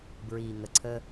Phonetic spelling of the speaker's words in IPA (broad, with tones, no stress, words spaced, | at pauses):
bɹiː˨ŋə˨ǀʰə˦